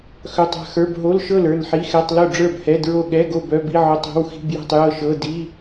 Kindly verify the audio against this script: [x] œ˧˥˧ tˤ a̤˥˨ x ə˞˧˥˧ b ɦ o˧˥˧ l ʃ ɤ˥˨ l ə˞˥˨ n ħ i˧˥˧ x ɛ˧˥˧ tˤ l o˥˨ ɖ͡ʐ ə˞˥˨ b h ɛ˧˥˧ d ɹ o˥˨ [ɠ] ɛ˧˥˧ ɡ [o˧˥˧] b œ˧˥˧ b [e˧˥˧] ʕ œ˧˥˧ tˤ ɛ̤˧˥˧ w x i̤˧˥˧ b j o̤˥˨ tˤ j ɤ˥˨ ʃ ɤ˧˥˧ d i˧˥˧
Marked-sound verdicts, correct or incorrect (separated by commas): correct, correct, incorrect, incorrect